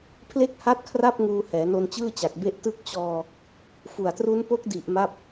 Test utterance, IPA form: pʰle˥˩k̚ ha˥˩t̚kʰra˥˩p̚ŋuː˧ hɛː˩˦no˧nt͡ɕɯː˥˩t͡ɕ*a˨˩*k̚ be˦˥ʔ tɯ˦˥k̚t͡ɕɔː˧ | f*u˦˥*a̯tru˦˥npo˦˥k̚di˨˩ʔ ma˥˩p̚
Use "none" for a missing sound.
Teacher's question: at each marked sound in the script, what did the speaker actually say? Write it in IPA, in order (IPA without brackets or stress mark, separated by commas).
a˨˩, u˨˩